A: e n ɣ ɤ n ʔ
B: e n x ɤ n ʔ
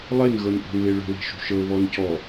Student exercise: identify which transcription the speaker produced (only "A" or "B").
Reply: A